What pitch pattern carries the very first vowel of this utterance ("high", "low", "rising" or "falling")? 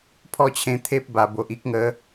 high